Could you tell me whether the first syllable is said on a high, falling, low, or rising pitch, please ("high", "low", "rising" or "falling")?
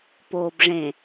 low